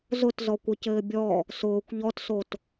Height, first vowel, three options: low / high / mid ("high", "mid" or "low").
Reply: high